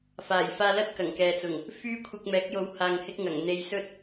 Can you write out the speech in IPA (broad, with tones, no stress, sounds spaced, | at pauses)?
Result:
f aː˨˩ j f aː˧ l ɐ˥ t̚ k ɐ˨˩ ŋ k ɛː˨ t͡s ʊ˨˩ ŋ | f yː˥ kʷʰ ɪ˧ k̚ m ɛː˨˥ k̚ j o˨˧ w h aː˨ ŋ h ɪ˧ k̚ ŋ ɐ˨˩ ŋ n̪ e˧ j s ɵ˥ t̚